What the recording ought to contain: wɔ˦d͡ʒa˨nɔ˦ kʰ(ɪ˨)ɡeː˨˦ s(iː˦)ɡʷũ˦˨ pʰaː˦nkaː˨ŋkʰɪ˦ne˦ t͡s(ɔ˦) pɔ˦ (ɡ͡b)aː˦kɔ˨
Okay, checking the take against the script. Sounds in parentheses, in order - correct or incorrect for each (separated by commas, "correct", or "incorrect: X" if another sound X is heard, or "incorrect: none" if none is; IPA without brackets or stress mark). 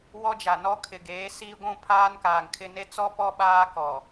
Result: correct, correct, correct, incorrect: ɓ